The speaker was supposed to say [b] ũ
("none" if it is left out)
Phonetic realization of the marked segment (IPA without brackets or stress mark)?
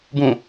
b